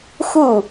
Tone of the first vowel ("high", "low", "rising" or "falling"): falling